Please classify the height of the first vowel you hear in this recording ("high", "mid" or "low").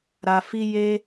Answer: low